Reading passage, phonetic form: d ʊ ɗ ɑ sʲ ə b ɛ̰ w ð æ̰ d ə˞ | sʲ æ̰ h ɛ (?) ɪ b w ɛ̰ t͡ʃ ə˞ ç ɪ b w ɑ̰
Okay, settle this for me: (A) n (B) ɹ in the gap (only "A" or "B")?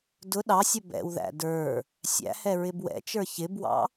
B